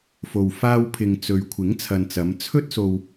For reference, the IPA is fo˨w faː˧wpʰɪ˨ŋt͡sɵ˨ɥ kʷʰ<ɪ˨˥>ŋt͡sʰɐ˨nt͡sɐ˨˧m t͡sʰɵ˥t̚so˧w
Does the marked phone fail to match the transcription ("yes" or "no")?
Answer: no